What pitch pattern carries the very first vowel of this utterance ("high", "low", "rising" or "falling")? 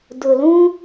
low